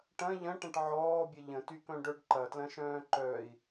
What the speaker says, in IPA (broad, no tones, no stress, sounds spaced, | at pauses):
ʈ ɐ̃ ʎ ɐ̃ ʈ ɐ̃ ʈ ʕ ɔː bʲ ə ʎ ə̃ t y k œ̃ ɖ œ ɖ ǃ ɐ t l ɐ̃ ʃ œ̃ː ǃ œ i̯